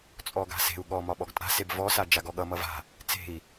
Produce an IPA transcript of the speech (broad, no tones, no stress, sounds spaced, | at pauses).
t͡sʼ ɔ ɡ a̤ s e̤ u̯ ɠ ɔ m ɒ ɓ ɔ ɡ tʼ a̤ s e b v ɔ s a d͡ʒ a ɡ ɔ ɠ ʌ m ʌ v a̤ | t͡s e̤ i̯